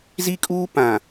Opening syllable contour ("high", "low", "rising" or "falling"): high